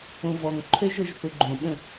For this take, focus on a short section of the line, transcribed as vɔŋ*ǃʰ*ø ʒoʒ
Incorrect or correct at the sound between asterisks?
correct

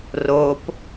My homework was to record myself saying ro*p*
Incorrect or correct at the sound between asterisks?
correct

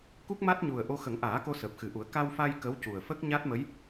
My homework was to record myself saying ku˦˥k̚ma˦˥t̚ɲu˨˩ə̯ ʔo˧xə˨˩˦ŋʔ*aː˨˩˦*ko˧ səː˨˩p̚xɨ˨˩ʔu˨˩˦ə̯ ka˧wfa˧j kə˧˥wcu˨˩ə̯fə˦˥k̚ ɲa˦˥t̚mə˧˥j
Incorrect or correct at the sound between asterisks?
correct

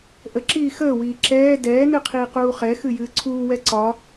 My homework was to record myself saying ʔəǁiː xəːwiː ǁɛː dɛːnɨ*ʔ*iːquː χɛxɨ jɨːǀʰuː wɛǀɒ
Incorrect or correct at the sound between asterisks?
incorrect: qʰ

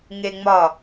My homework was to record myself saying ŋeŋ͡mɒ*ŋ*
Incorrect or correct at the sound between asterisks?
incorrect: none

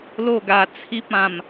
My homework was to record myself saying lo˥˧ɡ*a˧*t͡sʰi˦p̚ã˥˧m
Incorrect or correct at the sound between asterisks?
correct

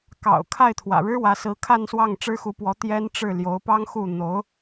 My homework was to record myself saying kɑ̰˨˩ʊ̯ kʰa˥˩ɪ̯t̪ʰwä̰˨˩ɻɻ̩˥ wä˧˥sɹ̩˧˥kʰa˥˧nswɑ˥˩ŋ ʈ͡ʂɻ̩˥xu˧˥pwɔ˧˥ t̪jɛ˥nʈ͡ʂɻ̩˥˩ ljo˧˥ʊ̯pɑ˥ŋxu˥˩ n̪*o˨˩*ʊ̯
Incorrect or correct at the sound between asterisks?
incorrect: o˧˥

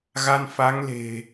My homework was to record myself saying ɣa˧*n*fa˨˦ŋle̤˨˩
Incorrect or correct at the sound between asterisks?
correct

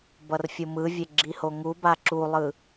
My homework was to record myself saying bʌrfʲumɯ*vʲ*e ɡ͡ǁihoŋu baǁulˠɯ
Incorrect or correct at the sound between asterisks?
correct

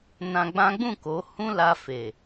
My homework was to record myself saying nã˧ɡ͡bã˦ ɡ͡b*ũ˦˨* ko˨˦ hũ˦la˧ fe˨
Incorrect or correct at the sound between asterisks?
correct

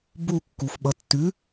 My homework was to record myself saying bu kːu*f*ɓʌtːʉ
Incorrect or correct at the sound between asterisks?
correct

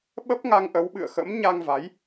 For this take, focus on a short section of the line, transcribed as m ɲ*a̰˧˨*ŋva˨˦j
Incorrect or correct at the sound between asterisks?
incorrect: a˧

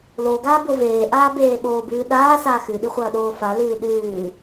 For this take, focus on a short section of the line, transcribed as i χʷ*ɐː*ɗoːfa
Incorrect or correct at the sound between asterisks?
correct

